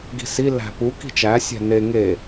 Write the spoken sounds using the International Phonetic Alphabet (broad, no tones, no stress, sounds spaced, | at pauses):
ɡ i̤ s i l æ̤ p u k i̤ t͡ʃ æ sʲ æ̤ n e ŋ e